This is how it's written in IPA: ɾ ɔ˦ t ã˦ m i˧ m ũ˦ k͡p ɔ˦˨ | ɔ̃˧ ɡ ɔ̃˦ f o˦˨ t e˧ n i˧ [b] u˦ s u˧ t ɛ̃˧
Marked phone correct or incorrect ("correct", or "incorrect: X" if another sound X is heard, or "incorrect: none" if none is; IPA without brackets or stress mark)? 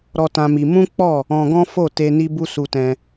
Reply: correct